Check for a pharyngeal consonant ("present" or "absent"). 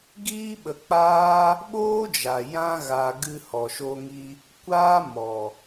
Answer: absent